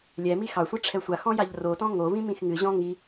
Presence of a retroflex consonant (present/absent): present